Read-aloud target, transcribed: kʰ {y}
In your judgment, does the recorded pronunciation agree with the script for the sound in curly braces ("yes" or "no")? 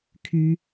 yes